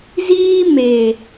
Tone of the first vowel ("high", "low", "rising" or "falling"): high